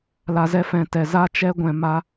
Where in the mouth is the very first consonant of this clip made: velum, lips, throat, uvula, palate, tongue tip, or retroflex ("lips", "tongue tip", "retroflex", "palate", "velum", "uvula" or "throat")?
tongue tip